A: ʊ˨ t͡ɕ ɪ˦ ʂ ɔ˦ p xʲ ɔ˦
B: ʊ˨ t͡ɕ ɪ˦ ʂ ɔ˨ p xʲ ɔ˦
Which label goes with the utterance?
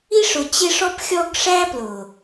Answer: A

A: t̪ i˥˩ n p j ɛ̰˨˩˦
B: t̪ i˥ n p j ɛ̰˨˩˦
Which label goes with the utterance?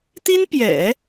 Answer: B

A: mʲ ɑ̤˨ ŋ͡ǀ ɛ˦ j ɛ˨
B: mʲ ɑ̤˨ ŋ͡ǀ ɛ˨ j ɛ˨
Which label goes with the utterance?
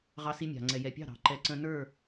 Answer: B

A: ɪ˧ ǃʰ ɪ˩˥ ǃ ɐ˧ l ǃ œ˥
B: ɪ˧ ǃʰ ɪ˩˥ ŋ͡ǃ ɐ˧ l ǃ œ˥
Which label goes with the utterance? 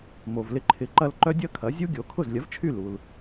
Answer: A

